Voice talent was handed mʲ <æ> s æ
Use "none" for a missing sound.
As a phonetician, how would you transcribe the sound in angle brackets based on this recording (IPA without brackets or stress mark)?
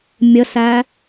ə